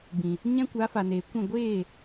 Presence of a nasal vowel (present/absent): present